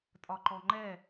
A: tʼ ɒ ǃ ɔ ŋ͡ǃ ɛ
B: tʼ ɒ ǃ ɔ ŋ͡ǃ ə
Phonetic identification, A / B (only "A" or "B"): A